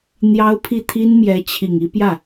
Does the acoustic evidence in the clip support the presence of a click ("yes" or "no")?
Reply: no